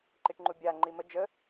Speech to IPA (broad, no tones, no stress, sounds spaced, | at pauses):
ǃ i ʈ ŋ͡ǃ u bʲ a ŋ͡ǃ i m ə d͡ʒ ə